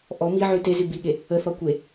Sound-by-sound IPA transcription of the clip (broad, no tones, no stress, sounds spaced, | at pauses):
ʔ ɔ m i ʕ y t e z y b i ɠ e | ə θ ɔ kʷ e